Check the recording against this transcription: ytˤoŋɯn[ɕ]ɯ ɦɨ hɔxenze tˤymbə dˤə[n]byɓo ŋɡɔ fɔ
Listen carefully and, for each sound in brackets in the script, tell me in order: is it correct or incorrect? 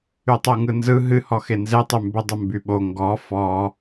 incorrect: z, incorrect: m

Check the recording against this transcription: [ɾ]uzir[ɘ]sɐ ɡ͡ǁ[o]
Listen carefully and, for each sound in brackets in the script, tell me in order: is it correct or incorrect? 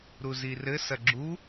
correct, correct, incorrect: u

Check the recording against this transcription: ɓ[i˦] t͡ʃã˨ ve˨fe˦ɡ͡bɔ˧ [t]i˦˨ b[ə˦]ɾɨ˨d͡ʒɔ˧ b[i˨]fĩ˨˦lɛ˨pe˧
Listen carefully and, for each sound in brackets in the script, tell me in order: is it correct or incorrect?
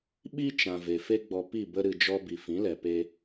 correct, incorrect: p, incorrect: ə˧, correct

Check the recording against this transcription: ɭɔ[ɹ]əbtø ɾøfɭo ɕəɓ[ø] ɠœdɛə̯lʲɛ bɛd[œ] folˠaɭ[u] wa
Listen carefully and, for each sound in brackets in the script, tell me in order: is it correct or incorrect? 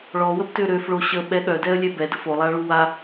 incorrect: w, incorrect: ɛ, incorrect: ə, correct

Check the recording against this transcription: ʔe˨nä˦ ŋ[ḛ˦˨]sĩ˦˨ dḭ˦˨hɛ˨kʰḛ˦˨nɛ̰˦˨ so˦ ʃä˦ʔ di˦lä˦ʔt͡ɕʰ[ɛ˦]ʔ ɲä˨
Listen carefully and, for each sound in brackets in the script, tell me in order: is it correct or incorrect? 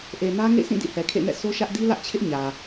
correct, incorrect: ɪ˦

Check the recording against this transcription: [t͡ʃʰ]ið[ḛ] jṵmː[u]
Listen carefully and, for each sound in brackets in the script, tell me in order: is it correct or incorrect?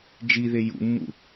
incorrect: d͡ʒ, incorrect: e, incorrect: ṵ

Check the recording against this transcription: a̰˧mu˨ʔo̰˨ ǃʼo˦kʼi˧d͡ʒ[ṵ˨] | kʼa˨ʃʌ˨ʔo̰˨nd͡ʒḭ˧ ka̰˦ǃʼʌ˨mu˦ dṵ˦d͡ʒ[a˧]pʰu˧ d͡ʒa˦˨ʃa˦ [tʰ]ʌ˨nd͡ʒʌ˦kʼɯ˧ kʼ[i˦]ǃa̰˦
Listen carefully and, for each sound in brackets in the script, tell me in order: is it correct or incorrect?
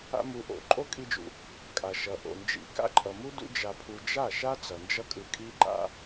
correct, correct, incorrect: t͡s, correct

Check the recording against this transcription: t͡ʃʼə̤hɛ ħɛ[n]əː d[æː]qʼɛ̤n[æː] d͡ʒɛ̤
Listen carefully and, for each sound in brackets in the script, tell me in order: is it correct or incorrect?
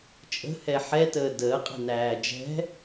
incorrect: t, incorrect: əː, correct

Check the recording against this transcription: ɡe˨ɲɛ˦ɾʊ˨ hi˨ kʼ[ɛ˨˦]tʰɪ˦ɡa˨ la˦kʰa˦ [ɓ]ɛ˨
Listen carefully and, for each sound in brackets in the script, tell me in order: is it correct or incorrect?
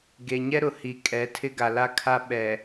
correct, correct

